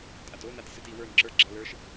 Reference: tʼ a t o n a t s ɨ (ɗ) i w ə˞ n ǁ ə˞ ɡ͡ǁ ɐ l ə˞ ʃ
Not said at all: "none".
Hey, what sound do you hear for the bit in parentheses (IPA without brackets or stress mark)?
t